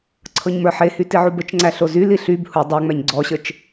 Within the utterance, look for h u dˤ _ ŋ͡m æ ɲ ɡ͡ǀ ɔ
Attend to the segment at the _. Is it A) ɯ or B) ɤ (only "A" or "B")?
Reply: B